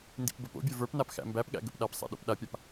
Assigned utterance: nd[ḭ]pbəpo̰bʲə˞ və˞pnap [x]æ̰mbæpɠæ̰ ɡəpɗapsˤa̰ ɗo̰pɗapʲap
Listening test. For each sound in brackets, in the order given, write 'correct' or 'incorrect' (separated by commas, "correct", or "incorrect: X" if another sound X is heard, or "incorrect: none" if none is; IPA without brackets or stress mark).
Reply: correct, correct